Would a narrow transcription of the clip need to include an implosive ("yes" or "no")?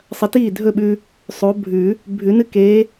yes